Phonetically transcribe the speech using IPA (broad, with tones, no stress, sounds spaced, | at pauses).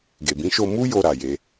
ɡ e˨ b ĩ˨˦ ʃ o˧ m u˦ j o˧ ɾ a˨ j e˧